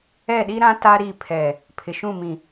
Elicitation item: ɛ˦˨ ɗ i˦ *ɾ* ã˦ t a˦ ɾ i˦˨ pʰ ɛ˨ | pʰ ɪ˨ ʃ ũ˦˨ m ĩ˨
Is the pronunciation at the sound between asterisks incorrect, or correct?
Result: correct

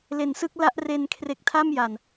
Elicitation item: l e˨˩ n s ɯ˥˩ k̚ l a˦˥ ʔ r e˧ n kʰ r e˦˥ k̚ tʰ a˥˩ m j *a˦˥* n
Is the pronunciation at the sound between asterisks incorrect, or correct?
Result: incorrect: a˨˩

